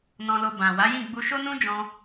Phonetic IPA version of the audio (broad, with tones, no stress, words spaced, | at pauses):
nɔ̃˧lo˧ bã˨ wa˨˦jĩ˦˨ ɡ͡bu˧ʃo˦nũ˦ d͡ʒɔ̃˧